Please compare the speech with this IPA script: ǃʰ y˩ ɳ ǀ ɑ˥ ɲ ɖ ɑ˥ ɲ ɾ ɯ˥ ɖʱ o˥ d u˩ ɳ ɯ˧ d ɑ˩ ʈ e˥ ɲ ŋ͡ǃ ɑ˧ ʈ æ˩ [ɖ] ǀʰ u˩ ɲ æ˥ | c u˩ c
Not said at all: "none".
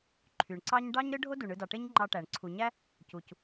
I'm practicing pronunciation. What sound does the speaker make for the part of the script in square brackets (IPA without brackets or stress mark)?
ɳ